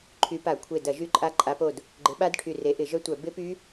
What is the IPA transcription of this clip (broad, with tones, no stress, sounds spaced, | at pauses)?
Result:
ǃʰ y˨˦ p a˧˩˧ kʷʰ e˧˩ d ɐ˧˩˧ ʒ y˦˥ ǃʼ a˦˥ ǃʼ a˨˦ p o˧˩ d | ɡ͡ǃ ɪ˨˦ ɓ a˦˥ d ʈʰ y˧˩ r e˨˦ ʔ ɪ˧˩˧ ʒ œ˦˥ tʷ œ˧˩˧ b ɪ˦˥ p y˦˥